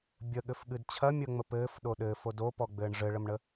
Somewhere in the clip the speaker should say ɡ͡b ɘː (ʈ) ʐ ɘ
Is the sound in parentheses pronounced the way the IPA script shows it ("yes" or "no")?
no